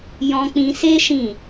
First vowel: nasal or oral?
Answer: nasal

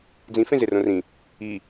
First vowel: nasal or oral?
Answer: nasal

